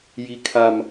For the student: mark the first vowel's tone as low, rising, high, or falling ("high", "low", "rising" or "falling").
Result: low